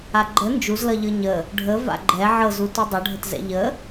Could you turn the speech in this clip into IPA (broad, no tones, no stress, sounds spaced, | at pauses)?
a ɡ͡ǃ ə n d͡ʒ u z l ʌ ʎ ɤ ɲ ə | ɖʱ ə v a̰ ɡ͡ǃ ɛ ʕ ɤ z u t u dˤ ʌ ɖʱ ə t z ɛ̰ ʎ ə